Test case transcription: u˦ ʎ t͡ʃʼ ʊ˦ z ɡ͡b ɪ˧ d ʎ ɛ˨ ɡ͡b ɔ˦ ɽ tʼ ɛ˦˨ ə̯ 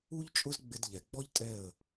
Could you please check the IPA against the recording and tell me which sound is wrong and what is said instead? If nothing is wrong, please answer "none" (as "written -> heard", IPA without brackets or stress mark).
ɽ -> ʎ